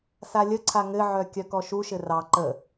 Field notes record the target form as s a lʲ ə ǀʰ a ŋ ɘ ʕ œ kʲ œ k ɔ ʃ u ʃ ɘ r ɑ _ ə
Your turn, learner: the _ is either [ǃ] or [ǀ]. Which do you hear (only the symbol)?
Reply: ǃ